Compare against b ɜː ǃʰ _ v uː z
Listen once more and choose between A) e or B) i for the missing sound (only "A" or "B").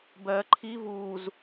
B